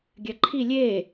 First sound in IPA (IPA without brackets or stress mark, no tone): ɡʲ